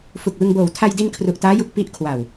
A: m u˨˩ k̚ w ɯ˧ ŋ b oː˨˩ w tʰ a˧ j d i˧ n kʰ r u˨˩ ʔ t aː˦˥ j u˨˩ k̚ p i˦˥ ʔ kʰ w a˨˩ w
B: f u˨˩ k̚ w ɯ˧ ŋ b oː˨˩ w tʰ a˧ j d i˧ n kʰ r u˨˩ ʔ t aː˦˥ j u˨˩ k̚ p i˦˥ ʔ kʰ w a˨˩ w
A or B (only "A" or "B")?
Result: B